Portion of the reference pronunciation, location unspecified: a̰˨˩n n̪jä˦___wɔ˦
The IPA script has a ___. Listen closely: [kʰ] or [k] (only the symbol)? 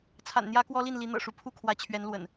k